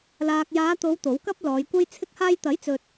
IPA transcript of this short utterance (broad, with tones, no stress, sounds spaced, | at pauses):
l aː˨ k̚ j aː˨˧ t̪ o˨˧ w t̪ o˨˥ w k ɐ˥ p̚ l ɔː˨˧ j kʷ ɐ˥ j t͡sʰ ɪ˧ k̚ h aː˧ j t̪ ɐ˨˥ j t͡s ɵ˨ t̚